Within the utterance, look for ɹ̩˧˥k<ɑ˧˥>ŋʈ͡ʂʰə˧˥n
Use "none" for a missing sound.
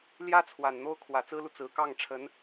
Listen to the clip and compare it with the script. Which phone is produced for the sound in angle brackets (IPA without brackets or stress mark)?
ɑ˥˩